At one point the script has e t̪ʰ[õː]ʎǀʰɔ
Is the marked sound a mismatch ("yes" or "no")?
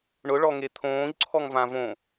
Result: no